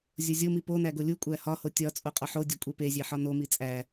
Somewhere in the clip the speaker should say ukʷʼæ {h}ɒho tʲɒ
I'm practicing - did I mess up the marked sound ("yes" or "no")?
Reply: no